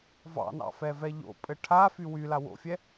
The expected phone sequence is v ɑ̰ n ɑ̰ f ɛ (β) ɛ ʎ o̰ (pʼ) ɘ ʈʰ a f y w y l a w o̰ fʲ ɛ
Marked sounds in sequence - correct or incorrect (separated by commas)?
incorrect, correct